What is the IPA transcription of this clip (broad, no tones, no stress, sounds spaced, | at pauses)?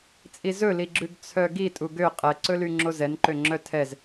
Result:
t͡sʼ i z ɵ l i ɡ͡ǁ ʉ ɡ t͡sʰ œ ɡ i tʼ u ɡ ø qʼ ɛ ǀ ɵ l y ŋ͡ǁ o z ɛ n ǃ ø ŋ͡ǁ œ tʰ ɛ z